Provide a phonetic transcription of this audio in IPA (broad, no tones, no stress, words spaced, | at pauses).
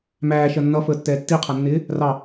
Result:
mæːʃɜ nːʌfəːtːɛː tːiqʰʌnːɪː | rɑ